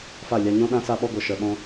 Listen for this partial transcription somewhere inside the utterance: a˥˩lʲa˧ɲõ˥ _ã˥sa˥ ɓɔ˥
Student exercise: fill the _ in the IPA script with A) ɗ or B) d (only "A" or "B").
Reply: A